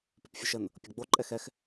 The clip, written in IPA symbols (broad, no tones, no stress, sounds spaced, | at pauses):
p ʉ p fʲ ʉ ʃ ə n | pʲ ɤ ɡ͡b o ǃʼ ɛ x ɛ x